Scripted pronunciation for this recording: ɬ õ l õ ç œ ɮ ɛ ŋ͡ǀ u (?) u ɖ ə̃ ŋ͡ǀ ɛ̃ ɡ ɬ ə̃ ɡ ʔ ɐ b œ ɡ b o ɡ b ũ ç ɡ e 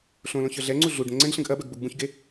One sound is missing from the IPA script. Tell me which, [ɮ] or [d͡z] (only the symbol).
ɮ